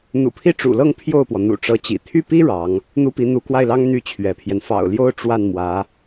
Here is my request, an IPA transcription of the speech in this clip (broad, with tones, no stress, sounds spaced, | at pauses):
n̪ ṵ˨˩ pʰ i˥˩ ʈ͡ʂ ṵ˨˩ l ɤ˥˧ ŋ pʰ j o˥˩ ʊ̯ p w ɔ˩ n̪ ṵ˨˩ ʈ͡ʂ ɤ˧˥ t͡ɕ ḭ˨˩ t̪ʰ y˥˩ p i˥ ɻ ɑ˧˥ ŋ | n̪ u˥ p i˧˥ n̪ u˧˥ k w a˥˩ ɪ̯ l ɑ˥ ŋ n̪ y˥˩ t͡ɕʰ ɥ ɛ˧˥ pʰ j ɛ˧ n f ɑ̰˨˩ ʊ̯ l j o˥ ʊ̯ ʈ͡ʂ w a˥˩ n m w ä˧˥